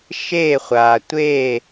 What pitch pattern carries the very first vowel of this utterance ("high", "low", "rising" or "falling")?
falling